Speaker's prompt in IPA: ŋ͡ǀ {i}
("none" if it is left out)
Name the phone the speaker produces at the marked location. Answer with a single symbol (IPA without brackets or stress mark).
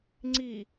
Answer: i